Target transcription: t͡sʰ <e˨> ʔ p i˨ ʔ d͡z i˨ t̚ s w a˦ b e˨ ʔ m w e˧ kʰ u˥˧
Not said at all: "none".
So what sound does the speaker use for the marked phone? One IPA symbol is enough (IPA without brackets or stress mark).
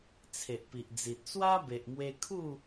e˨